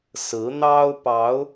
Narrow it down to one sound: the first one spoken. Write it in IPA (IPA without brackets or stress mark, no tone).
s